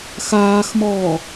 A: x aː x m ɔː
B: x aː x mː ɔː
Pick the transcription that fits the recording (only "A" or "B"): A